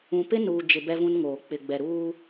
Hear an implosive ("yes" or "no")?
no